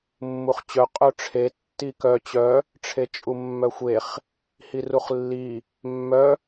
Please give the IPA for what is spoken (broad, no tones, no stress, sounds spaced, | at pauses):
mː u χ t͡ɕ œ qʼ œ ʈ͡ʂʰ e tː i k œ t͡ɕ œ | ʈ͡ʂʰ e t͡ʃʼ u mː œ xʷ e χ | h i r u χ lː i | mː œ